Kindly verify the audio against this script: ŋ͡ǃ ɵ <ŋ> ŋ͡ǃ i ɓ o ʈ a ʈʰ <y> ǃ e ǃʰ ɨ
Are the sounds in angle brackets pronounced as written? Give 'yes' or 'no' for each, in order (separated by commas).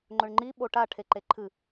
no, no